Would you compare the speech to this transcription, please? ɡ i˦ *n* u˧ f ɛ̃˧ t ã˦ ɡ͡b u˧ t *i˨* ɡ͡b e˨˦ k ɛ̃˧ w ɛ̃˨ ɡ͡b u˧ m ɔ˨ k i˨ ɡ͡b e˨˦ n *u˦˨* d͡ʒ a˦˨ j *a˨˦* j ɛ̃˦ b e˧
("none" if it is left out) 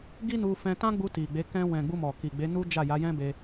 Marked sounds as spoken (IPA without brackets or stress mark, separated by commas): n, i˨, u˦, a˨˦